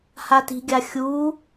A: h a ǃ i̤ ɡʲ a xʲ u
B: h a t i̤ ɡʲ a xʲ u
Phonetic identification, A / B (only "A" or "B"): B